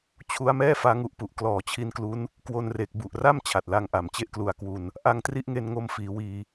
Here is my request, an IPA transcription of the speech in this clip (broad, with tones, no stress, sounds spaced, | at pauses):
t͡ɕʰ u˦˥ a̯ m ɛː˥˩ f aː˦˥ ŋ u˦˥ ʔ p u˨˩ ʔ k l ɔː˨˩ t͡ɕʰ i˧ n k l u˦˥ n | k w o˧ n r e˨˩ k̚ b u˨˩ ʔ r a˥˩ m t͡ɕʰ a˨˩ t̚ l a˧ ŋ ʔ a˨˩ m t͡ɕ e˥˩ ʔ k l u˨˩ a̯ k w u˧ n | ʔ a˧ ŋ t r i˦˥ ʔ ŋ e˧ n ŋ o˧ m f iː˩˦ w iː˧